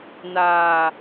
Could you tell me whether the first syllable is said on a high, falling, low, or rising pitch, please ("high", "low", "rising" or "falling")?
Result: low